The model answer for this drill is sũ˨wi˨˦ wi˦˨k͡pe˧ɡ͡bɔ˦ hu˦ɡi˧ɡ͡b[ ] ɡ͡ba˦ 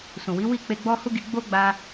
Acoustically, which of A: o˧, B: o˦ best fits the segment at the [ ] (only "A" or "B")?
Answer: B